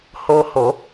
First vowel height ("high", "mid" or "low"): mid